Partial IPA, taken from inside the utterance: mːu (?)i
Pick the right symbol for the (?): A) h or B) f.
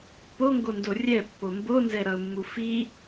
B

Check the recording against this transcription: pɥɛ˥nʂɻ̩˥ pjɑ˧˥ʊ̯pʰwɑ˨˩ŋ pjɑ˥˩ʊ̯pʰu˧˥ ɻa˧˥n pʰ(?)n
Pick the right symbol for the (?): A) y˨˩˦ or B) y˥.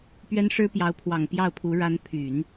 A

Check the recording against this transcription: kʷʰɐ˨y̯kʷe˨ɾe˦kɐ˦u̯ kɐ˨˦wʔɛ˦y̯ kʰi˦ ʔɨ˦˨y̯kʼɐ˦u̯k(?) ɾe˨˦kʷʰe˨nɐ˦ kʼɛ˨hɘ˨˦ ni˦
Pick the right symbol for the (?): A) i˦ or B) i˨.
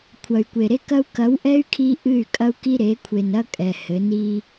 A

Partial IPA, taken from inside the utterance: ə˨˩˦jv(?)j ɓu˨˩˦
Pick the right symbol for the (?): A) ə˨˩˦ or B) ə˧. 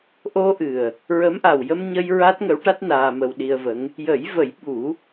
A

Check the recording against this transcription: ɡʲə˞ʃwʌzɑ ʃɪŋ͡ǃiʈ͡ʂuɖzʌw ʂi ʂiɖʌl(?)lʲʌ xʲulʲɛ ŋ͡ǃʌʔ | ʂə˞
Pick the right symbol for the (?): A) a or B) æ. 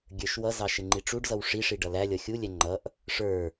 B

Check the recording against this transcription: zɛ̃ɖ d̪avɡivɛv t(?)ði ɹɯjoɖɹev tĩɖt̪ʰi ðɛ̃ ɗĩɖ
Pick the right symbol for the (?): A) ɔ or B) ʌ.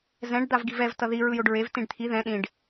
B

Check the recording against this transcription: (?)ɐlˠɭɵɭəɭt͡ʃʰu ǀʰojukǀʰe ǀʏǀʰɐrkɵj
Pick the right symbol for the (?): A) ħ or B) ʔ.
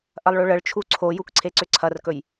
B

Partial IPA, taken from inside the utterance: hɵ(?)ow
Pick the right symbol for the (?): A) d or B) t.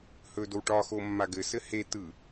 A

